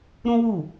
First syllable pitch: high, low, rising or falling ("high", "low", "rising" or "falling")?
high